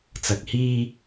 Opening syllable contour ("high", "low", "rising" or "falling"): low